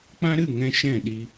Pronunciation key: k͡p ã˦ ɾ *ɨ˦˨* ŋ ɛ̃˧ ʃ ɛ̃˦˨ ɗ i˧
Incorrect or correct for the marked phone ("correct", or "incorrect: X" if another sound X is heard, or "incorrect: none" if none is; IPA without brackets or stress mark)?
correct